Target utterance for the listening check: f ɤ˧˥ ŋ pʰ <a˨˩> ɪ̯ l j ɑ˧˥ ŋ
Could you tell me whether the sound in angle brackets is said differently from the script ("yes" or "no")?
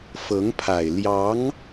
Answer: no